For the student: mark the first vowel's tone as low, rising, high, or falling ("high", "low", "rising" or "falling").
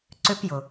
high